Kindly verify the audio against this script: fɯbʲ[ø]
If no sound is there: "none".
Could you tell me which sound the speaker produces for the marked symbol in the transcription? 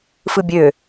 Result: ø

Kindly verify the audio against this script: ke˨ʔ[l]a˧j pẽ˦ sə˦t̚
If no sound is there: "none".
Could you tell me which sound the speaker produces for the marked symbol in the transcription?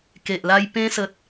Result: l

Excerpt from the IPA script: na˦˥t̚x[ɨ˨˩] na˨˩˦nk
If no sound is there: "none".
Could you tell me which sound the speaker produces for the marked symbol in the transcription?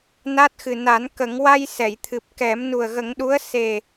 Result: ɨ˨˩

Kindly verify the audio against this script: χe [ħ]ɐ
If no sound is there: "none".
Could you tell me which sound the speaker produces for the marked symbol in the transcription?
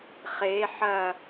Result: ħ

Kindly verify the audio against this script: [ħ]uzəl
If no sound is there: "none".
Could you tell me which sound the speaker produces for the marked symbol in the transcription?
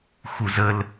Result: x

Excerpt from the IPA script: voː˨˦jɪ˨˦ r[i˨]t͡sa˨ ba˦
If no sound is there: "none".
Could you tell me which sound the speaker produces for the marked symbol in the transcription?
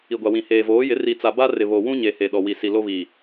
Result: i˨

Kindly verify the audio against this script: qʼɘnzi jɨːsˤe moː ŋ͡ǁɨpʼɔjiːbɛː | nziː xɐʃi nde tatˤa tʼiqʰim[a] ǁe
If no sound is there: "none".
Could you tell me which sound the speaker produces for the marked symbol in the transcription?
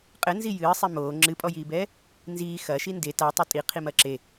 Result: ɐ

